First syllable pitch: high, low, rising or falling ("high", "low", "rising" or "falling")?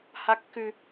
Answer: high